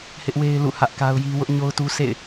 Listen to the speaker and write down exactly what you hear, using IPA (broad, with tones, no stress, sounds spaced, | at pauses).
h ɪ˦ ʔ w e˦ ɪ̯ l ṵ˦˨ h ä˦ ʔ k a˦ ʊ̯ j i˦ w ʊ˦ ʔ ɲ o˦ ʊ̯ t u˦ sʰ ḛ˦˨ ɪ̯